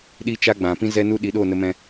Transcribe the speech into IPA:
ɗ i˦ t͡ʃ a˦ ɡ͡b ã˨ p ĩ˦ z ɛ˦ n u˦ ɗ i˨˦ ɗ oː˦˨ n ə˧ m ɛ̃˧

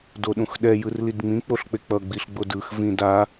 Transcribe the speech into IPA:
d o ɗ ũ x ɗ ɛ j ɯ r l i d ŋ͡m ĩ k͡p o ɬ k͡p e k͡p ʌ ɡ͡b i ɬ ɡ͡b o d ɯ x v ĩ d a

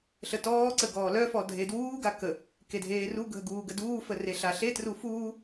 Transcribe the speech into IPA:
ɬ ə t ɔː ǀ ə ɡ ɔː l œ f ɔ dʱ e d w uː ɡ a k ə | k e dʱ eː r u ɡʱ ə ɡ uː ɡ ə d uː f ə r e ɬ a ɬ e t r u f uː

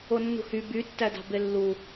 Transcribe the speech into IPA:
o nː ṳ h y b y tː æ d ɑ̤ b e lː u

